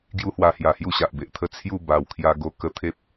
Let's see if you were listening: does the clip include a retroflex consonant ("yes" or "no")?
no